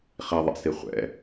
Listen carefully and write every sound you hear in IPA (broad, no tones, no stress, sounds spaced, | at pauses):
χ i ðˤ ɛ̰ s i χʷ ɛ̰